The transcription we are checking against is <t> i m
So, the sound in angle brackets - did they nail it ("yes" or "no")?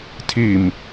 no